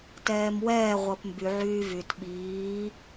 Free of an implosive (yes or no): no